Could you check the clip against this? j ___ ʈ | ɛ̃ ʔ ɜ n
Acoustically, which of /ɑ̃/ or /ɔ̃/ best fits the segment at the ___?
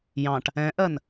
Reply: ɑ̃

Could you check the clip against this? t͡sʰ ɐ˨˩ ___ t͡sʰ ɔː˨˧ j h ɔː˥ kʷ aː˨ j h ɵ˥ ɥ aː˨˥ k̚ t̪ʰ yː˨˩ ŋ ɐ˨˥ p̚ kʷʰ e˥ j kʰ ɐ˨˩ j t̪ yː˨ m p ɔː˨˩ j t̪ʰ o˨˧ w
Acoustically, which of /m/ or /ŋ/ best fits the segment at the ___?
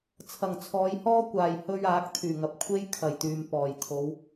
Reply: ŋ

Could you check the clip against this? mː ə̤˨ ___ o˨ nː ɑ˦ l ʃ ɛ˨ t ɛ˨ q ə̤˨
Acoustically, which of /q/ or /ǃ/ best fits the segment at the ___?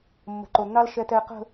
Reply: ǃ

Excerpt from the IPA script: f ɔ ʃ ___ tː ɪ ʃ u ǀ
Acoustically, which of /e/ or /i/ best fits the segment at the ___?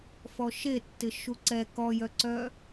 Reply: e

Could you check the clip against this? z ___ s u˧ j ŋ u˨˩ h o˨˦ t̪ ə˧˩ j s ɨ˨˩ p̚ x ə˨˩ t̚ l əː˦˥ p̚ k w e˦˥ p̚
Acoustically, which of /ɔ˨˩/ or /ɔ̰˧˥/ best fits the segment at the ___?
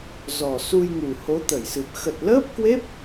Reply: ɔ˨˩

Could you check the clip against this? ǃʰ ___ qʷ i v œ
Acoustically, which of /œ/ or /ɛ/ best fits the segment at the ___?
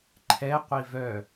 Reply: ɛ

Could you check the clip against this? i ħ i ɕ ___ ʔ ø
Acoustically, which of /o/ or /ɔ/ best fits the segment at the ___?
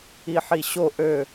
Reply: o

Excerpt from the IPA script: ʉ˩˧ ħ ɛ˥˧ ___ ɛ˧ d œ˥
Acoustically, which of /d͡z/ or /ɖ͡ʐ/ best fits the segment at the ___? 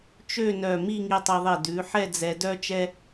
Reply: d͡z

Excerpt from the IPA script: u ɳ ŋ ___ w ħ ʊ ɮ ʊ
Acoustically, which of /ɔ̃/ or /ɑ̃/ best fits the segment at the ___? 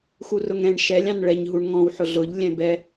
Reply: ɔ̃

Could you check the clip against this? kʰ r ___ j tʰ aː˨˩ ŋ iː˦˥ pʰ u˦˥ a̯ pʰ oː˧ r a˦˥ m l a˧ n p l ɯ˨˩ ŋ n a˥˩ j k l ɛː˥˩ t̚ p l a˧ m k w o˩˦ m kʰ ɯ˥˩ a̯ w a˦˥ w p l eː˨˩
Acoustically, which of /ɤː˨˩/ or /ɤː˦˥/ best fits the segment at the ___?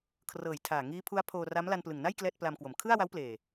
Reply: ɤː˨˩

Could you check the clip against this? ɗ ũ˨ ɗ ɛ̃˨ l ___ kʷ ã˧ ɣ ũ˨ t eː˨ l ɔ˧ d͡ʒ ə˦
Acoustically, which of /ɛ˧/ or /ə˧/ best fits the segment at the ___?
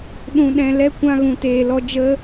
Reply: ɛ˧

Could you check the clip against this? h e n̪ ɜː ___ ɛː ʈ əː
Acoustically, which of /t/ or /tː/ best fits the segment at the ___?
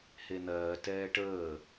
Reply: t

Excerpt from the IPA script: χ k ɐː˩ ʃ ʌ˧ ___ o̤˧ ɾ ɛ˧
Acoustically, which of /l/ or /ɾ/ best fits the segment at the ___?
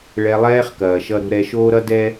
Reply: ɾ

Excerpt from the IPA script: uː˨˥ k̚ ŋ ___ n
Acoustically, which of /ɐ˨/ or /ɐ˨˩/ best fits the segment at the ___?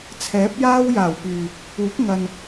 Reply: ɐ˨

